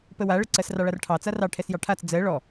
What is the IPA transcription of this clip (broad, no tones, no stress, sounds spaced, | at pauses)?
p ə w a ɭ ə ǀ ɜ s r ɑ ɭ a r ʈʰ ɑ t͡s a r ɑ ʈʰ ɛ s j ɑ ʈʰ a t͡s d͡z ɜ ɭ ɔ